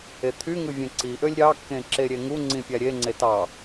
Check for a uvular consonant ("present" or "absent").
absent